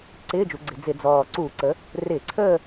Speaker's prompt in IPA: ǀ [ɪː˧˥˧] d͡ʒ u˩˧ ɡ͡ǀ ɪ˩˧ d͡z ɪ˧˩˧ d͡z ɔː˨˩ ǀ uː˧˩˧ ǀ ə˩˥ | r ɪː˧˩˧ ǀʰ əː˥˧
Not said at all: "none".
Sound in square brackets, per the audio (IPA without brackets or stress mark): ɪː˧˥˧